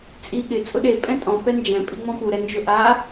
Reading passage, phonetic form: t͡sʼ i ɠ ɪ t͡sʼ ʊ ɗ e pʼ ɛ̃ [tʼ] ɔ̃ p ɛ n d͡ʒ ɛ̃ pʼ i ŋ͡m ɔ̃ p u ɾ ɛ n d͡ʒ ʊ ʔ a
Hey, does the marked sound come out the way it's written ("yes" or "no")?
yes